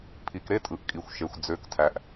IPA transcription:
pʰ i˨ k ɾ e˦ tʼ ɯ˨ ʔ kʼ i˨ xʷ ʃ e˨ xʷ d͡z ø˨˦ k tʰ æ˨ ʔ

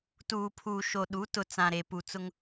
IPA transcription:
t uː˨ pʰ uː˨ ʃ o˨ ɗ u˨˦ t ʊ˨ t͡s ã˨ ɾ e˨ p u˨ t͡s ʊ˦ ŋ

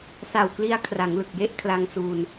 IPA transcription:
s a˨˩ w k l i˧ a̯ kʰ r a˩˦ ŋ l ɯ˨˩ k̚ j e˥˩ ʔ kʰ l a˧ ŋ s u˧ n

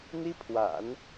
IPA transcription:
n̪ i˥ pʰ w a̰˨˩˦ n

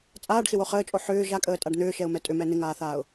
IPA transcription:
t͡sʼ aː ɖ x ɪ w o χ əː t͡ʃʼ o ħ ʏː ʒ a kʼ əː tʼ a ɖ n̪ ʏː ʃ ɛ ʊ̯ m ɛ tʼ ʏ m ɛ n ɪ ŋ aː θ aː ʊ̯

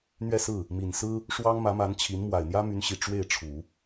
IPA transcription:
n̪ ɥ ɛ˥˧ s ɹ̩˥˩ | m i˨˩ n s ɹ̩˥ | ʂ w ɑ˥ ŋ m ä˧˥ m a˧˥ n t͡ɕʰ i˧˥ n m w a˨˩ ɪ̯ n̪ j ä˥ m y˧˥ n ɕ i˨˩ ʈ͡ʂ w e˥˩ ɪ̯ ʈ͡ʂʰ u˨˩˦

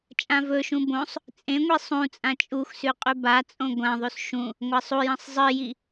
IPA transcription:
t͡ʃʼ ã v ɵ ʃ ũ b õ sˤ | t͡sʼ ẽ ŋʷ i sˤ ũ t͡sʼ ã t͡ʃʼ u x s ʉ qʼ ʉ b a t͡sʼ õ ɡʷ ã ðˤ ʉ s ʃ ũ | ŋʷ ɐ sˤ u j ɐ̃ sˤ zˤ ɨ j i

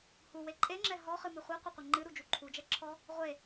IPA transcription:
h u w e ǃʼ e ŋ͡ǁ ɛ ɦ ɔ χ ɨ m ɨ χʷ ɛ qʷ ɐ qʷ ɐ ŋ͡ǃ ɨ ɾ u d͡ʒ u ǃʰ u d͡ʒ ɛ ǁʰ ɔ | ʁʷ e

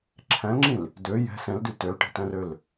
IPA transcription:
ǁʰ æ̃ l ŋ͡ǁ ĩ l | d ø j ɛ̤ s ɛ̃ l d y t ø l ʈ i̤ t æ̃ r ø l

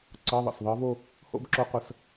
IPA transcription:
ǀ ɤ˧˥˧ ðˤ ə̰˩˧˩ s ðˤ ɤ˧˥ v o˥˧ | h o̰˥˧ b ǁ o˧˥ qʷ ə˩˧˩ s

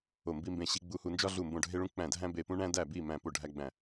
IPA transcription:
o˧˩ m b i˧ m b ẽ˧˩ ɕ i˧ ɡ͡b u˧ h u˧ n d͡ʒ ɒ˧ ɮ u˧˩ m b õ˧˩ ɖʱ e˧ ɭ ũ˧ k͡p æ̃˧˩ dʱ æ̃˧ b e˧˩ p ũ˧ ɳ æ̃˧ d æ˧˩ b i˧˩ m æ̃˧˩ p o˧˩ ɖʱ æ˧ ɡ͡b æ̃˧˩

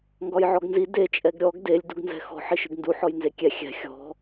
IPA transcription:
ŋ ɡ ɒ j ʕ ɔ ɡ n z i d e t͡ʃʼ ɛ ɡ ɾʲ ɔ ɡ d e lʲ d u ɡ n z ɛ̤ x ɔ̤ ħ i ʃ ɨ ɡ n d u ħ ɔ j n z e kʲ ɛ xʲ ɛ̤ xʲ ɔ̤

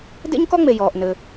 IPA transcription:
d ḛ˥ ɲ k ɔ˥ ŋ͡m e˩ j ɔː˩ ʔ n ɘː˩

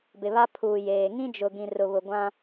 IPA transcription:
b ɪ˨ β a˦ pʰ uː˨ j eː˨ ŋ ĩ˦ d͡ʒ ʊ˨ ɡ ĩ˨ r ʊ˨ β ʊ˨ ɡʷ ã˦

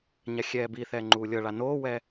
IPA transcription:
ɲ a xʲ ɛː b i θ ɛː ŋ͡ǃ uː lʲ ɤ ɭ a n oː w ɛ

